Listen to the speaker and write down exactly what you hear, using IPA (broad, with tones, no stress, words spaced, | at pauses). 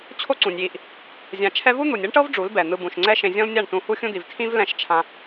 t͡ɕʰo˦ǀũ˨nʲji˧ʔ | zʲã˧t͡ʃʰɛ˦ vu˦n̪u˨nʲe˦ɳʈɤ˦v ɖ͡ʐu˨˦lbɛ˨ n̪ɯ˧bũ˨ʃŋ͡ǀɛ˦ ʃẽ˧zʲɔ̃˦lnʲa˦˨ɳtũ˧ hu˦xʲũ˦d̪i˨v tʰĩ˦v lɛ̃˦˨ʃ t͡ʃʰã˧